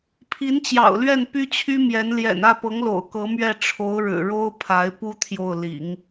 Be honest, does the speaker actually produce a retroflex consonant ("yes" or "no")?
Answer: yes